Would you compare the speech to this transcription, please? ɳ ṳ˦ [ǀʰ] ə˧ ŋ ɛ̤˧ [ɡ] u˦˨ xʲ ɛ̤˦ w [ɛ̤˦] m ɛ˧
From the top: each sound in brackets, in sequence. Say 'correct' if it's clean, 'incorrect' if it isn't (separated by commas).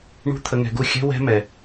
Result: incorrect, correct, correct